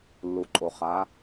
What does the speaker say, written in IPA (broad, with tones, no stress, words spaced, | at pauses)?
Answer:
lːu˩ǃʼo˩χa˩˧